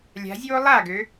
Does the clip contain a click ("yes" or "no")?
no